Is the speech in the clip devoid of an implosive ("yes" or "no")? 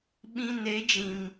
no